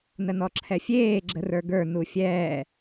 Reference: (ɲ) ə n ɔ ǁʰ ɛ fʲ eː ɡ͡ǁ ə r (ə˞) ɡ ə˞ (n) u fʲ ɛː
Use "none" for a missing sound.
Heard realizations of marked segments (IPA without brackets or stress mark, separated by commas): n, ə˞, n